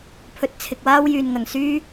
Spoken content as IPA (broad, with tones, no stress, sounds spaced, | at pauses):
pʰ ɵ˧ t̚ t͡sʰ ɪ˨ k̚ w aː˥ w j yː˨ n ŋ ɐ˨ ŋ s yː˥